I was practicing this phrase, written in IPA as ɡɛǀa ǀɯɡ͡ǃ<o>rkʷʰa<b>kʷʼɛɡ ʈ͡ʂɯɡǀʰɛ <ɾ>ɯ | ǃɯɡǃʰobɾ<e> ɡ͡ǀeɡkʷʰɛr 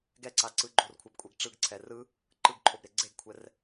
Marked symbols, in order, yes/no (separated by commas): yes, yes, no, yes